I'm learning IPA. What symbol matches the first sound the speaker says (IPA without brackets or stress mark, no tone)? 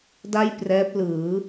d